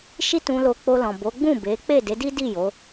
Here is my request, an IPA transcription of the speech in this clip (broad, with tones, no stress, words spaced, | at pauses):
ʃi˦ tũ˧lo˧ k͡po˧lɔ̃˨ bo˨˦ ɡ͡bũ˦˨be˨˦ k͡pe˦˨de˨˦di˦di˦˨ jo˨˦